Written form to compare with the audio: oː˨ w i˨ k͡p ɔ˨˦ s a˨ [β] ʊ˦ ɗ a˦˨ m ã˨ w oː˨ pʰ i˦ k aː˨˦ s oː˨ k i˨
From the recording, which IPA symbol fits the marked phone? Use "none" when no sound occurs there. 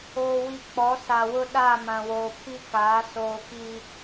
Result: w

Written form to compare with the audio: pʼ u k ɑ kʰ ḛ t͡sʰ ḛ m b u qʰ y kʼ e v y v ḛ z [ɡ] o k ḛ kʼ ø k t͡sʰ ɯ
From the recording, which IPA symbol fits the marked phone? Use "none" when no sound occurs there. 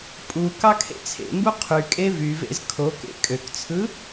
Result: kʰ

